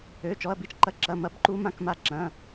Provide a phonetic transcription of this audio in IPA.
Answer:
ø˧˥˧ t͡ʃ ɔ˧˥˧ ɐ̯ b i˦˥ t͡ʃ ǃ ɐ˧˥˧ ǁ ɐ˧˥˧ m ɐ˦˥ b ǃ u˦˥ m ã˧˥˧ k m a˦˥ ǁ ɐ̃˧˥˧

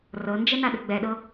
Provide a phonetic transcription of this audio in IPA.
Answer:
r ɤ n d͡ʒ ɛ n a ɗ ə ɡ͡b ɛ ɗ ɤ

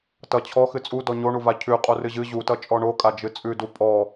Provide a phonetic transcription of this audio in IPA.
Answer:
t ʌ t͡ɕʰ ɔ x ɨ t͡sʼ u d ɔ ɲ o ɳ u v a cʰ ʉ qʼ o r ɨ ʑ ɨ ʑ u t ʌ t͡ʃʼ ɔ ɳ o kʼ a d͡ʒ ɨ t͡sʼ ʉ d u pʼ ɔ

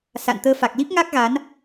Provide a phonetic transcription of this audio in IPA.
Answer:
s a̰˧˨ n t̪ əː˧ f a˨˩ k̚ l i˦˥ p̚ ŋ a˦˥ k̚ ɣ a˨˦ n

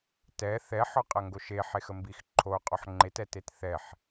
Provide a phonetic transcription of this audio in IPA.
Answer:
t ɛ θ ɛ ħ ɔ qʼ ɐ ŋ ɡ o ʃ e ħ e x ə m b i x ǃʰ o qʼ ɔ ħ ŋ͡ǃ e t ɛ t e t θ ɛ ħ

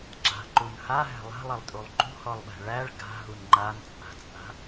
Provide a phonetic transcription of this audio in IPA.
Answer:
ɡ͡ǁ a̤ ǃ u n h a ɦ æ̤ lˠ a̤ lˠ e lˠ tʼ u lˠ ǃ ṳ h ɔ lˠ ɓ æ̤ ɭ æ ɭ ɡ a̤ ɦ u n ŋ͡ǃ a n t͡sʼ a̤ t͡sʼ a̤

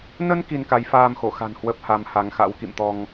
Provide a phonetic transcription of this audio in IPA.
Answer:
n ə˧ n k i˧ n k a˨˦ j f aː˧ m x o˧˩ x a̤˨˩ n h w ə˦˥ p̚ h a˧ m h a˨˦ ŋ x a̰˧˥ w k ḭ˧˨ m t̪ ɔ˧ ŋ

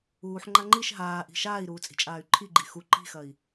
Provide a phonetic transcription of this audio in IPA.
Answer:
uː ħ ŋ͡ǃ a ŋ͡ǃ i ʃ ɦ aː ʔ i̤ ʃ aː i̯ ɾ uː t͡sʼ i̤ t͡ʃʼ aː y̯ ǃʰ i ɡ͡ǃ i x u ǃ i̤ x ɐ i̯

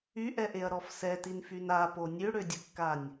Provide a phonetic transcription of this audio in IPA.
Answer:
y ʔ ɛ ʔ e ɐ̯ ɾ ɔ f s ɛ t i n f y n a p o nʲ ø ɽ ø dʲ ə kː a nʲ

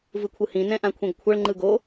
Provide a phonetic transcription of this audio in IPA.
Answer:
v ɯ kʷʰ ɯ h ĩ n ɛ̃ ʔ ã kʷʰ ẽ ɡ kʷʰ ʌ ɭ ŋ͡ǃ ɯ ɡ o

